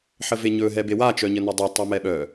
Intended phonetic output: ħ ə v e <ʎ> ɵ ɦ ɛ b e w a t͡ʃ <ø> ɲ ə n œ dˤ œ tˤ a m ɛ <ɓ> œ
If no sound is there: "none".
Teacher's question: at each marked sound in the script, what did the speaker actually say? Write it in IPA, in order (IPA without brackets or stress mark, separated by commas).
ɲ, œ, ɓ